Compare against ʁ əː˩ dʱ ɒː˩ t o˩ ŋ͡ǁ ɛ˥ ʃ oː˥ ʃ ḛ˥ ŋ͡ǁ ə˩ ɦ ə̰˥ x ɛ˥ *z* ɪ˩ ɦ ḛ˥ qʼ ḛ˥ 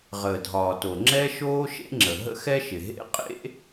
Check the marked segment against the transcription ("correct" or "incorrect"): incorrect